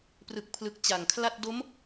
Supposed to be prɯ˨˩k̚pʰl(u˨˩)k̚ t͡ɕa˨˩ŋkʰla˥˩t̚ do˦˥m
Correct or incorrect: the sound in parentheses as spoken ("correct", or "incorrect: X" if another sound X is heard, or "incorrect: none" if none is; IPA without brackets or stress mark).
incorrect: ɯ˨˩